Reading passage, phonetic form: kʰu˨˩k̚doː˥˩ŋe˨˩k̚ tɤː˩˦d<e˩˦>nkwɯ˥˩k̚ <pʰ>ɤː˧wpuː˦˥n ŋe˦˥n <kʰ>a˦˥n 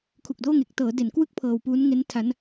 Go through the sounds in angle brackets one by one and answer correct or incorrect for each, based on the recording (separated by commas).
correct, correct, incorrect